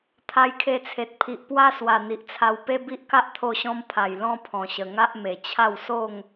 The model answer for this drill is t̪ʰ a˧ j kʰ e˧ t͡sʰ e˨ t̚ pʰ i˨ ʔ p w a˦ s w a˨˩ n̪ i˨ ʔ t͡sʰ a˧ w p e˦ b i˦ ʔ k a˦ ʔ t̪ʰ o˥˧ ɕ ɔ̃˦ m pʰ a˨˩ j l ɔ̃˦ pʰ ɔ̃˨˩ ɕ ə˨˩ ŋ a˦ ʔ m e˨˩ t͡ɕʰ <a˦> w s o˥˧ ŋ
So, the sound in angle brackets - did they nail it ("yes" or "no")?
no